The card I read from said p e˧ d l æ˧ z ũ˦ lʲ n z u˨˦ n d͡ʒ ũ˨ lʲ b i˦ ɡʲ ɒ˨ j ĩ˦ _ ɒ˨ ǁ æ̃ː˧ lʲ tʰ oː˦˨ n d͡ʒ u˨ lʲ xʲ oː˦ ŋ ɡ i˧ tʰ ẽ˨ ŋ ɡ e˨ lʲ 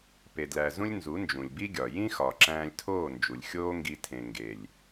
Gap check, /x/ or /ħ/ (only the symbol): x